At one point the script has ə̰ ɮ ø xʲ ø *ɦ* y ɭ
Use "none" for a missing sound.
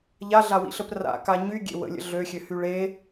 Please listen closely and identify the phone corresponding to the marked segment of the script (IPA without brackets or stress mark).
h